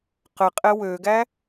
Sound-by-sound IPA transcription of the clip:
qə qʼɛwøɡæ

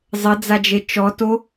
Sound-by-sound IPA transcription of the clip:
zˤɘd͡zad͡ʒe t͡ʃɔto

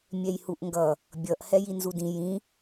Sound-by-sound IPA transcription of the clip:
mʲɛjhuʔŋɡʌ | bʲʌʔ hɛjinzudĩ jĩ

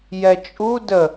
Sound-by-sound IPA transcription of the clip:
jɛt͡ʃʼu də

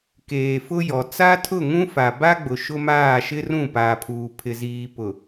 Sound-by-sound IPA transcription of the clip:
keː˨fʊ˦jɔ˨ t͡sa˦tʰʊ˦˨ŋũ˦ fa˨ba˦ɡ͡bʊ˨ ʃʊ˦maː˦˨ ʃɪ˦rũ˦˨ paː˨pʰuː˨ pʰɪ˨ziː˨pʊ˨

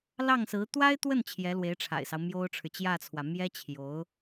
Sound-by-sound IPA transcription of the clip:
lɑ˥˩ŋsɹ̩˧˥ t̪wa˥ɪ̯t̪wə˥˩n t͡ɕʰjɛ˧˥lwe˧˥ɪ̯ʈ͡ʂʰa̰˨˩ɪ̯sɑ˦ʊ̯ mjo˥ʊ̯ʈ͡ʂʰɻ̩˨ t͡ɕjä˥˩t͡sʰwä˩ mjɛ˥t͡ɕʰjo˧˥ʊ̯

